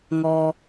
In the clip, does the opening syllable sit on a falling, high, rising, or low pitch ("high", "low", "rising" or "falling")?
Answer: low